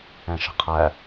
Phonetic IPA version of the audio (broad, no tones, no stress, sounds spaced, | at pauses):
ɛ̃ ʃ ə̤ qʰ æ